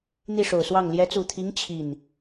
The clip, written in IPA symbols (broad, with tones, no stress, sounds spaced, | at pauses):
n̪ i˥˩ ʂ o˨˩ ʊ̯ s w ɑ˥˩ ŋ l j ɛ˧˥ t͡s u˨˩ t̪ʰ i˧˥ ŋ t͡ɕʰ i˥˩ n